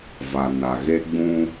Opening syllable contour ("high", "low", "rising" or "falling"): low